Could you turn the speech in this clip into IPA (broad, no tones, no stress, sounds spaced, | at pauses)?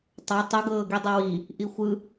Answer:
tˤ a tˤ u ɡ ɤː ɡ i dˤ u w i | ʔ i xʷ ɯ